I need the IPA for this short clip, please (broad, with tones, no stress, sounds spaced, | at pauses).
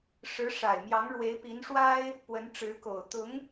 ʂ ɻ̩˧˥ ʂ a˨˩ ɪ̯ m j ɑ˧˥ ŋ ɻ w e˧˥ ɪ̯ p i˧˥ n ʂ w a˥ ɪ̯ | p w ə˧˥ n ʈ͡ʂ ɻ̩˧˥ k o˨˩ ʊ̯ t̪ ʊ˧˥ ŋ